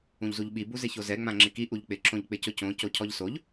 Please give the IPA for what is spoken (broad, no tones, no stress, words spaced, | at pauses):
ũʎzuʎɓi buzɪçozɛ ŋ͡mãŋ͡ǁɪki ʔuʎk͡pɪ ǁõʎk͡pɪcʊcõ cocʰɔʎsoʎ